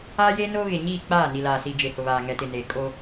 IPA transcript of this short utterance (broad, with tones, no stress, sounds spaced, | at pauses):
aː˦ j eː˦ n oː˦ ɣ e˨ ɲ iː˦˨ k͡p aː˦˨ n i˨ l aː˨ s i˨ d͡ʒ e˨ h ʊ˨ β aː˨ ŋ ɛ˨ t ɪ˨ n e˨ kʼ o˦